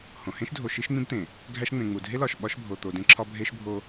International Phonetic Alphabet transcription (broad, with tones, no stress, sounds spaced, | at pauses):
h õ˨ h ẽ˦ ʃ dʱ o˨ ʃ i˦ ʃ ŋ͡m ĩ˦ b t̪ ẽ˨ | ɡʱ æ˦ ʃ ŋ͡m ẽ˨ ŋ͡m u˨ dʱ e˦ l ɒ˨ ʃ ɓ ɒ˦ ʃ bʱ o˨ t̪ o˨ d ẽ˦ ǁʰ ɒ˦ bʱ e˦ ʃ bʱ o˦